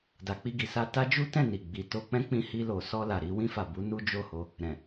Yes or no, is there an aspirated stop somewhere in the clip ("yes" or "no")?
no